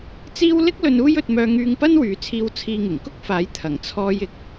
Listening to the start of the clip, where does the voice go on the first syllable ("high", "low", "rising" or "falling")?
high